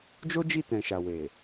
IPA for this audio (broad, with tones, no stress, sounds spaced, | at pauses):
d͡ʒ o˦ d͡ʒ i˦˨ t ɛ̃˨ ʃ a˨ w e˨